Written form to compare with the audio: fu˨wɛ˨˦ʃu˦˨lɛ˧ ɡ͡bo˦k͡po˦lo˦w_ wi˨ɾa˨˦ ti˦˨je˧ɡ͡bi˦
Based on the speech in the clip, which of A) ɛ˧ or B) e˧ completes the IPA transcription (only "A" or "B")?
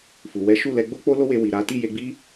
B